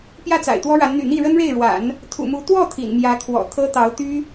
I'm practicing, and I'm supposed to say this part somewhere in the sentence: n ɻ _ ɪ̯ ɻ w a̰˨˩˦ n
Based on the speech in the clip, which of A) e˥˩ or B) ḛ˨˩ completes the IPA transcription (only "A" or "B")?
A